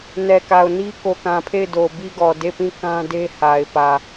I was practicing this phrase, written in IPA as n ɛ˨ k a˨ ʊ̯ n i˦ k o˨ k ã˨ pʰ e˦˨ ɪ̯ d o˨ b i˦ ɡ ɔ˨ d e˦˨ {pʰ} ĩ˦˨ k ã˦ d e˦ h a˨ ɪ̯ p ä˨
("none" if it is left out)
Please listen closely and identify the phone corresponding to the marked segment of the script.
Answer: p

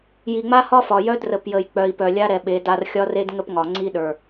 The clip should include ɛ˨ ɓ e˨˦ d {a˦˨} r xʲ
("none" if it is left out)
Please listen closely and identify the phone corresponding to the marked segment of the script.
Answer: a˦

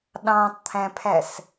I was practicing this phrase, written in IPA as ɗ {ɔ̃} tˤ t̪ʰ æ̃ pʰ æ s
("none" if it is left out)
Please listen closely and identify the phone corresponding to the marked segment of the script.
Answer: ɑ̃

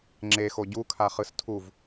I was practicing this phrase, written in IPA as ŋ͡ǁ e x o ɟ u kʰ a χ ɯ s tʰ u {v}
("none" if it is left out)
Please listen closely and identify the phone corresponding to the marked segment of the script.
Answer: v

